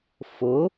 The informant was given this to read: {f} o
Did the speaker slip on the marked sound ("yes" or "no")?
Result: no